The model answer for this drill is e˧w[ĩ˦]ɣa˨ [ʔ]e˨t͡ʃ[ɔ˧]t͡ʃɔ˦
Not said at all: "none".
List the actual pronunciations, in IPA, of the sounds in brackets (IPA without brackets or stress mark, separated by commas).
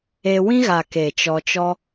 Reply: ĩ˦, k, ɔ˧